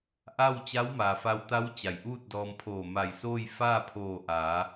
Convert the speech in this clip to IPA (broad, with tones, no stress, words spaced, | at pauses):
ʔa˥˨w t͡ɕa˧˥wma˩fa˧wt̪a˧˥w t͡ɕa˩jʔuː˥˨t̚dɔː˧mpʰoː˧˩ ma˧˩jsoː˥˨j faː˥˨pʰoː˧˩ʔaː˩˧